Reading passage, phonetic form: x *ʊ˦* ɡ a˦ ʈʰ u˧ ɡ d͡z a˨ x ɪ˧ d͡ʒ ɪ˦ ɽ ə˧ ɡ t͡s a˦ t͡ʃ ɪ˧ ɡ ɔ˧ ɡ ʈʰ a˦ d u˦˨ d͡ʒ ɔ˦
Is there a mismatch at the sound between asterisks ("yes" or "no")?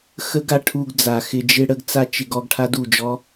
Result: yes